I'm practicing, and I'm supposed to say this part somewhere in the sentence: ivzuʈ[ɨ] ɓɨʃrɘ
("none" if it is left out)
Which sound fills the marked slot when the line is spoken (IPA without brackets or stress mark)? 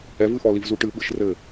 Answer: ɨ